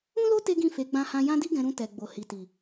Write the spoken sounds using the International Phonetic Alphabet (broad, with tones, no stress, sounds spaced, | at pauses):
ũ˦ l o˦ t e˦ ɡ ĩ˦˨ f e˨˦ ɡ͡b ã˧ h ã˧ j ã˦ d i˦ ɡ ɛ̃˧ ɾ ũ˧ t ɛ˨ ɡ͡b o˨ h i˨ t i˨